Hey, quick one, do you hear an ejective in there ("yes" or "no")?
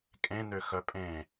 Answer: yes